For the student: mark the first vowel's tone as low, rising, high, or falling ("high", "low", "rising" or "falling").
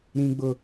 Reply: high